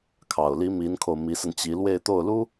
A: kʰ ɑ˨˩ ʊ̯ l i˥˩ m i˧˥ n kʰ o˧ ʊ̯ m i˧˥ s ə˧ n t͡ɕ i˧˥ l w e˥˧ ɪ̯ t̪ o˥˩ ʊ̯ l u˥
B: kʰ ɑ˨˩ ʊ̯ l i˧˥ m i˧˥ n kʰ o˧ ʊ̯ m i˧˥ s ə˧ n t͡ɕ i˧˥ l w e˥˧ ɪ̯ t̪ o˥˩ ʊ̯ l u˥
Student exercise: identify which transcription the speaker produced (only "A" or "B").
B